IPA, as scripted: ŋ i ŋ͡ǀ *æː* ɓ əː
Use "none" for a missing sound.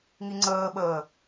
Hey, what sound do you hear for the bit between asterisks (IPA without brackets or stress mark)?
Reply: əː